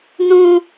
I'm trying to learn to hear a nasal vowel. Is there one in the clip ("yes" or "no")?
yes